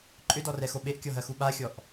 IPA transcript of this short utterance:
ǃʼʏdɔrɛxo ɓeʔkʲɔɦɜxu ɓaxʲɔʔ

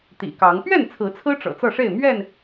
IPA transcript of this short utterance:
t̪ḭ˨˩kɑ˨˦ŋ pɥɛ˥˨nt͡sʰɹ̩˨˦t͡sʰɹ̩˦ ʈ͡ʂɤ̰˨˩t͡sɤ˥˨ʂe˥˨ɪ̯ mɥɛ˥˨n

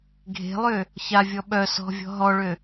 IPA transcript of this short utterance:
ɡʱe̤lˠø | çavʲɔ ɓœ sɔ̤vʲɔ̤ ɦɔɭø

